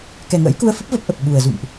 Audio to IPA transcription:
k ɛ˨˩ ŋ ə̰ː˧˥ j k u˧ ə̯ f ə˦˥ p̚ v ə˦˥ p̚ ʔ ə˨˩ p̚ ɓ u˨˩ ə̯ z ṵ˧˨ m ʔ

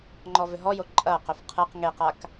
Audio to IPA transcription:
ŋ͡ǃ ɔ v ʏ ɦ ɔ j o ǃʼ ɐ q ʏ f qʰ ɯ q ŋ e q a k

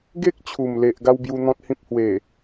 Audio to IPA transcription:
ɡ e˦ k̚ t͡ɕʰ u˨˩ m l e˨ ʔ ɡ a˦ w b j u˧ n̪ ɔ̃˦ t̚ h ĩ˦ p̚ h w e˨˩

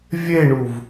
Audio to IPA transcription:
vʲ e ɳ u v

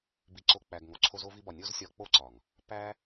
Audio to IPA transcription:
b i˧ ǀ o˧ k͡p æ˨ ɡ ŋ o˨ ǀʰ o˧ z o˧ v i˧ b ɒ˨ nʲ o˦ z sʲ ɒ˧ k͡p o˦ ǀ ɒ˨ ŋ | p æ˦

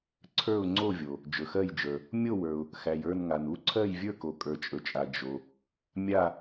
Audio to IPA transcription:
ǀʰ ə˞˥˧ ʊ̯ ŋ͡ǀ o˥˧ vʲ o˨ | d͡ʒ ɵ˨ x ɜ˥˧ j d͡ʒ ə˞˨ | mʲ o˥˧ w ə˞˨ ʊ̯ | x æ˨ j ə˞˥˧ n ŋ a˨ n u˥˧ ǀʰ ɜ˥˧ j vʲ ə˞˥˧ k o˨ kʼ ə˞˨ t͡ʃʼ ɵ˨ t͡ʃʼ a˨ d͡ʒ o˨ | mʲ a˥˧

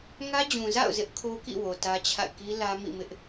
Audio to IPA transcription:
ŋ ä˦ d͡ʑ ũ˨ z a̰˦˨ ʊ̯ z ɪ˦ ʔ kʰ o˦ k ḭ˦˨ w o˨ t ä˦ t͡ɕʰ a̰˦˨ ɪ̯ k i˦ l ä˦ m ḭ˦˨ m ɪ˦ ʔ

